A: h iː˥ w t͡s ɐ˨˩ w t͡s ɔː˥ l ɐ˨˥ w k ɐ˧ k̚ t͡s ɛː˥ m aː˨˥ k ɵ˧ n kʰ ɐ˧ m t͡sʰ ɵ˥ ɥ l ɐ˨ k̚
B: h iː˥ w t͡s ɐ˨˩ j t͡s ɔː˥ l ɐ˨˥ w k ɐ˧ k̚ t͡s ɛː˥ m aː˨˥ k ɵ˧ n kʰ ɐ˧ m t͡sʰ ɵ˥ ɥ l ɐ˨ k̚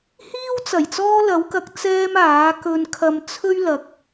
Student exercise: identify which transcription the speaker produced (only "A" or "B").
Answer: B